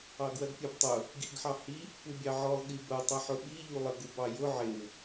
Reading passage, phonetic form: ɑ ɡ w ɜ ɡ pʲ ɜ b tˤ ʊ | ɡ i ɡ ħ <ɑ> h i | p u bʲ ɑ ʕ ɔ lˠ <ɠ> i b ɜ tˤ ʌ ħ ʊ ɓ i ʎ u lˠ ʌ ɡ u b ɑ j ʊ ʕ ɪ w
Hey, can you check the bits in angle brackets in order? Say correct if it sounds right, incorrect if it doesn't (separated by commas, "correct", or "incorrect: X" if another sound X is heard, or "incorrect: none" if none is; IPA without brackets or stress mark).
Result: correct, correct